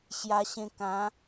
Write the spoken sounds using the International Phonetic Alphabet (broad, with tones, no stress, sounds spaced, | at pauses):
ɕ j a˧ ɕ ẽ˧ k ã˨˦